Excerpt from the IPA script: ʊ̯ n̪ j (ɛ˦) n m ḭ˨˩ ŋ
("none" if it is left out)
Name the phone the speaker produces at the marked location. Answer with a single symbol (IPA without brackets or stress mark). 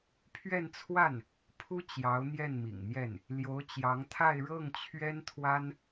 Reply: ɛ˥˩